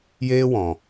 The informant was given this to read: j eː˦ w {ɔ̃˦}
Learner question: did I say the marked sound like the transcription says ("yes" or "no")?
no